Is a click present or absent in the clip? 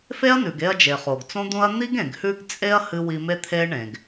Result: absent